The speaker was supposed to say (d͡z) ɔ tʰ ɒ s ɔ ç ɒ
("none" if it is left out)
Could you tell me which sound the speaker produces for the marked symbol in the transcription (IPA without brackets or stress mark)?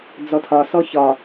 d͡z